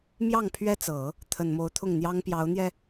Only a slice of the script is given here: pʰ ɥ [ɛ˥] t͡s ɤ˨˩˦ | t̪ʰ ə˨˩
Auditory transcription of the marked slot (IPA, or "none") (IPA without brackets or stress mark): ɛ˥